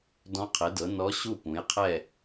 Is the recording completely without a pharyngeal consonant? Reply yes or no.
yes